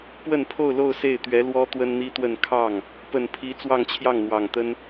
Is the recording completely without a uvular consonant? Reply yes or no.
yes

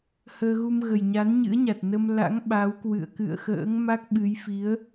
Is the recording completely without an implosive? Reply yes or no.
no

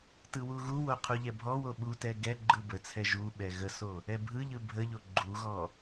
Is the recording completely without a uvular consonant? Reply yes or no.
no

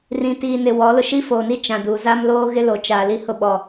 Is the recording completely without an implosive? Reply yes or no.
no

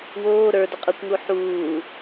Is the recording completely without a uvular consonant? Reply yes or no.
no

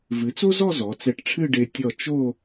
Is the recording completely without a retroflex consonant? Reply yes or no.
no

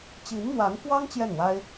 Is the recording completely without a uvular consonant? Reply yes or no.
yes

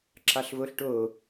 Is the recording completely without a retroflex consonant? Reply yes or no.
no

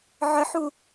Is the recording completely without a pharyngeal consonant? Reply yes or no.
no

